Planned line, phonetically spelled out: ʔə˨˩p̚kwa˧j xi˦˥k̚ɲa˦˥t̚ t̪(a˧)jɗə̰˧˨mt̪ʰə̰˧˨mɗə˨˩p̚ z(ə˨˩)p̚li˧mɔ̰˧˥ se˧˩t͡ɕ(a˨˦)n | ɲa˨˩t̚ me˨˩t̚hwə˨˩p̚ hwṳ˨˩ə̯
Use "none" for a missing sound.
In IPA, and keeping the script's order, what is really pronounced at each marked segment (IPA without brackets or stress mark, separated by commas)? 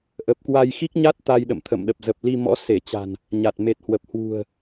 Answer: a˧, ə˨˩, a̤˨˩